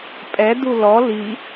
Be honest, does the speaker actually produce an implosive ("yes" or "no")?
no